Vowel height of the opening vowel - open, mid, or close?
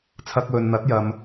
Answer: open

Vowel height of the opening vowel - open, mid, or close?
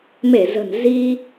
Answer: mid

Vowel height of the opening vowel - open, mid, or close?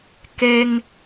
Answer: mid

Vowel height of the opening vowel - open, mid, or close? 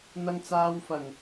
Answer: open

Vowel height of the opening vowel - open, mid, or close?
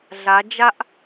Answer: open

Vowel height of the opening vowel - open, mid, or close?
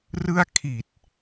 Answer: close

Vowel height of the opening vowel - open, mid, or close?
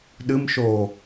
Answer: close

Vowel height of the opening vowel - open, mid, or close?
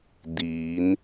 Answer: close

